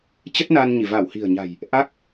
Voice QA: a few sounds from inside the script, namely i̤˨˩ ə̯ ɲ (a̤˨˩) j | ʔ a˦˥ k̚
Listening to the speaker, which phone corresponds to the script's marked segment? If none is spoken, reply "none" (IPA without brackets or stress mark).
a̤˨˩